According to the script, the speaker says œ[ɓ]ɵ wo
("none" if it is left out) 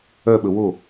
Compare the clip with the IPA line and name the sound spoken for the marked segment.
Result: ɓ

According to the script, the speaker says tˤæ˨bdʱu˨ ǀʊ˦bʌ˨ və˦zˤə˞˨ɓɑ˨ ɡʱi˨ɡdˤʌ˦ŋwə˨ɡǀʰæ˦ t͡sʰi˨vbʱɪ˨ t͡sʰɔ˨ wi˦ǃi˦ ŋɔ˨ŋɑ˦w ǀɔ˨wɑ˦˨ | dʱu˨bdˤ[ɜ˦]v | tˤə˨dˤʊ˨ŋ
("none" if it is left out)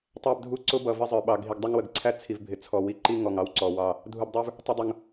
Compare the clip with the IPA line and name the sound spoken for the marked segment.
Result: ə˞˦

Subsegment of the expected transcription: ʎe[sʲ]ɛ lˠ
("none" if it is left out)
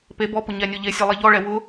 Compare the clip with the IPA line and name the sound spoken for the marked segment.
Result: sʲ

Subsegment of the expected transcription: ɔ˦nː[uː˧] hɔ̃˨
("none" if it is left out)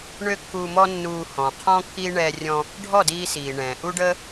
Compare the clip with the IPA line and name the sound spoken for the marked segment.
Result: uː˧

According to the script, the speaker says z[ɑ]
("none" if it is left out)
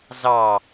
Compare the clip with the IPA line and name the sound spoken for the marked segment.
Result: ɑ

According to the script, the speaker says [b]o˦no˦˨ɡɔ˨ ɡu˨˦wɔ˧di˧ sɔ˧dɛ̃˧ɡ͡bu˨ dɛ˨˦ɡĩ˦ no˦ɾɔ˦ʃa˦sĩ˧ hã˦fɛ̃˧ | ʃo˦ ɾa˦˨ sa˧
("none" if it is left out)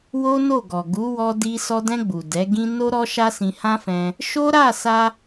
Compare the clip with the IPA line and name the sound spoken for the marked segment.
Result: w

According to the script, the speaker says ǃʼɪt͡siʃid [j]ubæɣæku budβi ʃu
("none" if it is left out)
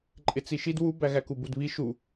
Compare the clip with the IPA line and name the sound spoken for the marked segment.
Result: w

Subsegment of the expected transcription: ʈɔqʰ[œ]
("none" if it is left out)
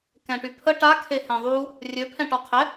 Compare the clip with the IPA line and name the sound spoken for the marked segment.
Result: ɛ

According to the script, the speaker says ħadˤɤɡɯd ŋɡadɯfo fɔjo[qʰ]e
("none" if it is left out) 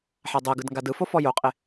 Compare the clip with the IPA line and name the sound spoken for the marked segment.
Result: qʼ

